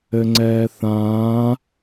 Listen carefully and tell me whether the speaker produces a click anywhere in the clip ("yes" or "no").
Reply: yes